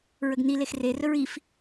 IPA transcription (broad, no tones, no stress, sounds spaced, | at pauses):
ɹ ə ɡ n i l e x r e r ɵ ɹ i f